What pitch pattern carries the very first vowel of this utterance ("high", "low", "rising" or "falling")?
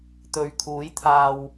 low